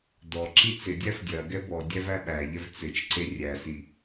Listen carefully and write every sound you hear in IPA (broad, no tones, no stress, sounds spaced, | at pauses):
d ɔ ǁ i t͡s ɪ dʲ æ f dʲ ɐ ɡ ɛ b ɔ dʲ æ v æ ɓ æ ʎ ɛ v t͡s ɪ t͡ʃ ǀ e rʲ æ s i